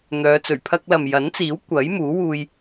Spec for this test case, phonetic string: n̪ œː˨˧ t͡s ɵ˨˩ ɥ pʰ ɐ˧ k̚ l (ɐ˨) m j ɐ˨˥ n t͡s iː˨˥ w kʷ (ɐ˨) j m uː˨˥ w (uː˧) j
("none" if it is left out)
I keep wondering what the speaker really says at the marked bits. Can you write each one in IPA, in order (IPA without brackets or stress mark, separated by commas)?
ɐ˨, ɐ˨˥, uː˧